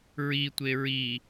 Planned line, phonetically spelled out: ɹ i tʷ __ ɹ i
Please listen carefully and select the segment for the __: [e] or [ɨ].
e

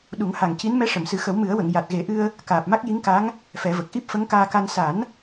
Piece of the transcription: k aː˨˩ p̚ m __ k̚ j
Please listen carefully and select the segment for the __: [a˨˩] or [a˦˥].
a˦˥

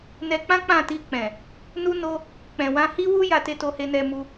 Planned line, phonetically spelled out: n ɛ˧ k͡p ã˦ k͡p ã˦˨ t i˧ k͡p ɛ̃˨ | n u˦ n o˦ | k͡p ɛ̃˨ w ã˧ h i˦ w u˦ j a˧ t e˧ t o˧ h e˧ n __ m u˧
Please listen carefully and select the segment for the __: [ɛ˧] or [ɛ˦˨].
ɛ˧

